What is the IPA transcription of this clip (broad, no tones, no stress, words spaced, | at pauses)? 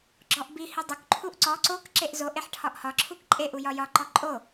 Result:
ɡ͡ǁɔʔbi hidˤok ǃʰuʔǀɔ ǀok ǁeʔzoʔ eħʈʰɒʔhɒ ǁʰukǃʼe ʔujɒjɒ ǃɔǃʼo